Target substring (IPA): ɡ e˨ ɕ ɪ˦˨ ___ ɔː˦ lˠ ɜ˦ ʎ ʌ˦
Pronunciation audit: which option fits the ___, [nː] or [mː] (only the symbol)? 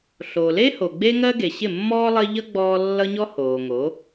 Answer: mː